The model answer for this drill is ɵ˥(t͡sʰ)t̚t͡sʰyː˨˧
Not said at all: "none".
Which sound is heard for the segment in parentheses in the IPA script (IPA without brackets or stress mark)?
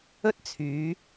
none